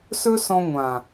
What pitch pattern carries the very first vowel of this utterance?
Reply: high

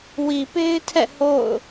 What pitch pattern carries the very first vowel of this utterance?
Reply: low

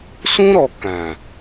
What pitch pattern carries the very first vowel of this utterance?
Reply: high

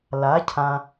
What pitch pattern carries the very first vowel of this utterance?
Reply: rising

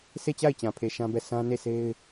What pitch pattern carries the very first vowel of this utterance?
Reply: falling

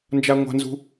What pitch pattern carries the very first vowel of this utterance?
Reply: high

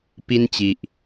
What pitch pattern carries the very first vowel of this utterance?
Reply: high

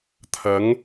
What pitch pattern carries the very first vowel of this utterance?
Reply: rising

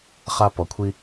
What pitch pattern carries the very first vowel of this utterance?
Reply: high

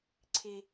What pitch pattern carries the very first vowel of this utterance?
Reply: high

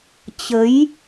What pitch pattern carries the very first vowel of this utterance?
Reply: rising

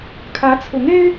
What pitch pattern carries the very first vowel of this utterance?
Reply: rising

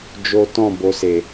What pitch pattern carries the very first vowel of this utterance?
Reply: high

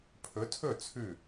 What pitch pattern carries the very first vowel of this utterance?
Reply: rising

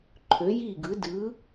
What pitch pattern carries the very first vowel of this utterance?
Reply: rising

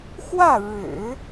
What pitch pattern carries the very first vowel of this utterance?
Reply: falling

